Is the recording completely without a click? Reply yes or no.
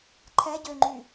no